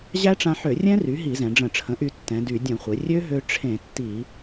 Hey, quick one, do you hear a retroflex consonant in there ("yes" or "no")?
yes